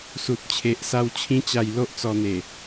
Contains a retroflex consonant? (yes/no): no